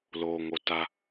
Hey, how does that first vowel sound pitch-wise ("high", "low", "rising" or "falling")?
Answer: low